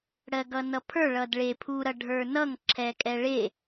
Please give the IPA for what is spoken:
ɽ ɜ ɡ ʌ n ʌ pʰ ə˞ ɭ ʌ d ɭ e pʰ u ɾ ʌ ɖʱ ə˞ n ʌ ŋ ǁʰ ɛ kʼ ɛ ɭ e

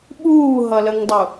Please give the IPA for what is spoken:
ɓ uː ɦ ʌ l ə ŋ dˤ u

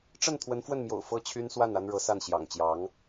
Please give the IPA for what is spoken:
ʈ͡ʂ ə˥˩ n t̪ʰ w ə˧˥ n f w ə˥˩ n m j o̰˨˩ ʊ̯ f ɤ˥˩ t͡ɕʰ y˥ n s w a˥˩ n a˥ n ɻ ɤ˧˥ s a˥˩ n ɕ j ɑ̰˨˩ ŋ t͡ɕ j ɑ˧˥ ŋ

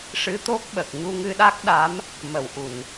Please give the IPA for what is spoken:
ʂ ɨ˧˥ t̪ o˦˥ k̚ ɓ ə˨˩ k̚ ɲ u˧ ŋ ɨ˧ ɗ a˦˥ k̚ ɗ a˧˥ m | m ə˨˩˨ w ʔ u˨˩˨ n

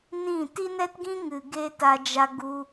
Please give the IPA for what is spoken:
n ĩ˦˨ t i˦ n ɛ˦ t ɡ ĩ˦ ŋ ɨ˨ ɡ e˦ t a˧ d͡ʒ a˧ ɡ u˧

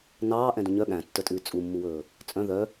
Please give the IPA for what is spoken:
n ɑː ʔ ɛ̃ d ũ ɲ œ ɠ æ̃ tː œ tʼ ʉː t͡sʼ u mː u w ɵː | t͡sʼ œ̃ ð œ

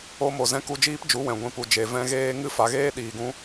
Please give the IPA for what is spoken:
o˧ m o˨ z ɛ̃˧ k u˧ d͡ʒ iː˦ p d͡ʒ u˨˦ w ɛ̃˨ ɡʷ ĩ˨ p u˨ d͡ʒ e˨ v ɛ̃˧ ɣ eː˦ ŋ ɨ˦ f a˧ ɣ eː˦ ɗ iː˨ ɡ ũ˧

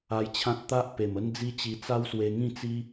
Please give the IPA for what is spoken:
a˧ j t͡ɕʰ ã˦ t̚ t̪ a˦ ʔ p e˨˩ m ə˦ n d͡z i˦ t͡ɕ i˧ t͡s a˦ w s w e˧ ŋ ĩ˥˧ t͡s i˦

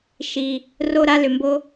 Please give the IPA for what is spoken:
ʃ i˦ | r o˥ ɾ a˥ l ʏ˦ m b o˥

